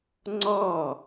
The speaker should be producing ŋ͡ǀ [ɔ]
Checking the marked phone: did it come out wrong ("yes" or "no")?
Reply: no